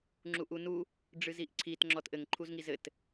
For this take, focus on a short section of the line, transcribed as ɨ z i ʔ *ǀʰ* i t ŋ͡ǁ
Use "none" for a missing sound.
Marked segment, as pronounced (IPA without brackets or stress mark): ǀʰ